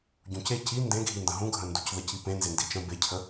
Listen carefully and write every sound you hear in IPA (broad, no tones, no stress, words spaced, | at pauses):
ɟũce ci ndẽɡʱində̃ ɦũɡʱə̃nducðə cipẽ nzendit͡ʃə̃ becʰə